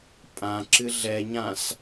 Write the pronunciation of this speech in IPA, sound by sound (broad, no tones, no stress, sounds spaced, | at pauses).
pʼ ã ǁ ɨ ɮ ɛ ɲ ã s